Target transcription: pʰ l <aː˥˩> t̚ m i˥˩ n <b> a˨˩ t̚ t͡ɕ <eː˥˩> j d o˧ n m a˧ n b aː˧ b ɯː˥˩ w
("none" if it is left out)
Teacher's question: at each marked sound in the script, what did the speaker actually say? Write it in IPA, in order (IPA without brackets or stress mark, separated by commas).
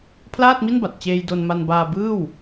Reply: aː˥˩, b, eː˧